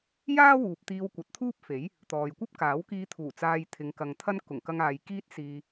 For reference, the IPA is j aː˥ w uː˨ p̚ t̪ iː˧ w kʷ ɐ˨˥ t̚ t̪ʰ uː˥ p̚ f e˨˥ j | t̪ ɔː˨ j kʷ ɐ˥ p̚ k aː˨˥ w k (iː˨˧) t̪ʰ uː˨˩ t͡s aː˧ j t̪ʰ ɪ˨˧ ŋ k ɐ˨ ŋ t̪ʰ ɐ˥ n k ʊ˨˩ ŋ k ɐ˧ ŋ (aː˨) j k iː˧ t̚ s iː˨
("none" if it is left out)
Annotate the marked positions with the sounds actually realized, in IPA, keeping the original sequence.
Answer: iː˧, aː˨

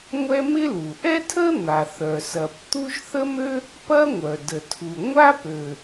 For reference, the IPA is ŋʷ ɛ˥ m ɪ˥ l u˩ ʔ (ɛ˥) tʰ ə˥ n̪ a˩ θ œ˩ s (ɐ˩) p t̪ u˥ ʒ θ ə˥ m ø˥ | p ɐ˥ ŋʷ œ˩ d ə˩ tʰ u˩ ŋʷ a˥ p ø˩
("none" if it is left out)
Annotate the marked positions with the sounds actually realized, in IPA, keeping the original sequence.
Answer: ɛ˥, ɐ˩

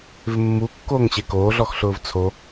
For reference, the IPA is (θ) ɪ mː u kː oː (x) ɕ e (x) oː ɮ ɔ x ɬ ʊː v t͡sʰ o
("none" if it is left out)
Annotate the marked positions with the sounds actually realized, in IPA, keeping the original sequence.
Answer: v, ŋ, k

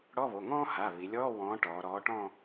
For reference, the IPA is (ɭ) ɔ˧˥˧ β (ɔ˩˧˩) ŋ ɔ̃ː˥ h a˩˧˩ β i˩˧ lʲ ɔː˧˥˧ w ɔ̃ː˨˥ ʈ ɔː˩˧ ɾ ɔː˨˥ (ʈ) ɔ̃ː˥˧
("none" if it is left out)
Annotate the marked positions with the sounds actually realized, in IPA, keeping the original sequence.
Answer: ɽ, o˩˧˩, ʈ

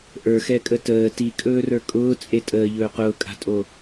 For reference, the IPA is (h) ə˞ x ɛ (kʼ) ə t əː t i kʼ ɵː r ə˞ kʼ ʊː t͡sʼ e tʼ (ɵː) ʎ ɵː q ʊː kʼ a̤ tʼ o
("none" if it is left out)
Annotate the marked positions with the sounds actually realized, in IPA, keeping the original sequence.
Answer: ʔ, kʼ, əː

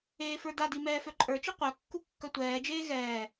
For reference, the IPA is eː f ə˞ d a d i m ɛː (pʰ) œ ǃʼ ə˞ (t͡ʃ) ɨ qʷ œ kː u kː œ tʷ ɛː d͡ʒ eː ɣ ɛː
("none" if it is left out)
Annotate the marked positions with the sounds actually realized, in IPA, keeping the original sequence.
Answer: f, t͡ʃ

